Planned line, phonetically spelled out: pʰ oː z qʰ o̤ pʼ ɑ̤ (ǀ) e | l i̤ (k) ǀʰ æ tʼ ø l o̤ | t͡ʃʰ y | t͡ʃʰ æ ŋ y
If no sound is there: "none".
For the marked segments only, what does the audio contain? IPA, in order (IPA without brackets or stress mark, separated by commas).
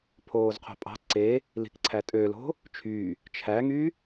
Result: ǀ, k